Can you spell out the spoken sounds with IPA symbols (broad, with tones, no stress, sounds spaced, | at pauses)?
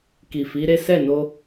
k i˨ f i˨˦ ɾ e˦ s ɛ˦˨ n o˧